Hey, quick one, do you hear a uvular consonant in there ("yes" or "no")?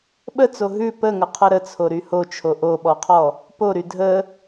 yes